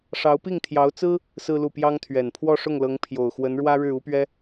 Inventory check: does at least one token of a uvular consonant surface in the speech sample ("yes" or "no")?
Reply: no